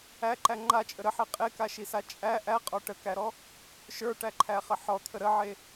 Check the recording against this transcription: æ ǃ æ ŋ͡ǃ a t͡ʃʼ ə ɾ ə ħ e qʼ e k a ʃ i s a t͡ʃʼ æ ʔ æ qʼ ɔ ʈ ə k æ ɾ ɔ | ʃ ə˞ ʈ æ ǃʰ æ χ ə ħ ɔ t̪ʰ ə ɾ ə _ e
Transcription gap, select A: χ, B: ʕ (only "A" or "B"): B